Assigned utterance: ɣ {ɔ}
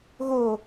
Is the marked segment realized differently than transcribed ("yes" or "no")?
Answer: yes